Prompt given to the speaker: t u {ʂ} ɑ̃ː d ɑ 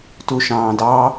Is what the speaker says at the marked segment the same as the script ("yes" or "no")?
no